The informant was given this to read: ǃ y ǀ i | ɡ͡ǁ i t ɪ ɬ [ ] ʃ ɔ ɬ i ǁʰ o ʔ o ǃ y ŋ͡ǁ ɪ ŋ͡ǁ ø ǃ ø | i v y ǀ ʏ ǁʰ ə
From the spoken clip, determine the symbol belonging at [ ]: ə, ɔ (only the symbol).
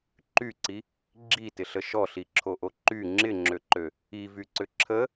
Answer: ə